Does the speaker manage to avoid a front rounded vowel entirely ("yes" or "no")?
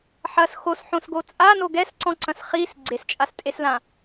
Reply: yes